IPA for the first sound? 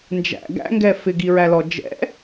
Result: n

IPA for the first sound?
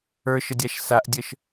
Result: ə˞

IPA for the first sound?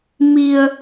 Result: m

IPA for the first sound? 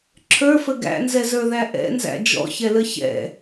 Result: ǁʰ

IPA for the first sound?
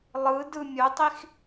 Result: lˠ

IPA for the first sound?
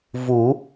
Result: v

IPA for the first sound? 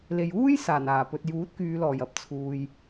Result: l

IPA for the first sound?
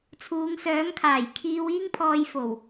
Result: t͡sʰ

